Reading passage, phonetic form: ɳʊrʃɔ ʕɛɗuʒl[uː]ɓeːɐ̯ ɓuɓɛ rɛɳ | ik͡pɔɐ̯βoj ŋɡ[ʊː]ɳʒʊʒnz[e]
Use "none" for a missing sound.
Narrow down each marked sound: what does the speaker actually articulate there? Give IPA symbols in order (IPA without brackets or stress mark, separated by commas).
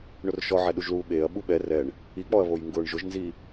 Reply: uː, ʊː, i